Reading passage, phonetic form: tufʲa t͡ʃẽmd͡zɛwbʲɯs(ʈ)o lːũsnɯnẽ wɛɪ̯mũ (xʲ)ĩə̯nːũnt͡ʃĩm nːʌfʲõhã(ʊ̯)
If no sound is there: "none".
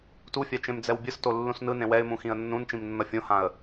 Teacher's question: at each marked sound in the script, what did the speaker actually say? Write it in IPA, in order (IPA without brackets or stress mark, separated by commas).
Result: t, x, ə̯